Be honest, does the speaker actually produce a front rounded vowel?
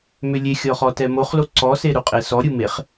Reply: yes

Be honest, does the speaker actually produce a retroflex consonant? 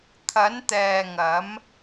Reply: no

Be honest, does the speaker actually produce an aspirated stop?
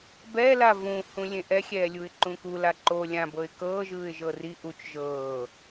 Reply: no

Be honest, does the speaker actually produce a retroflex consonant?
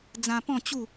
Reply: no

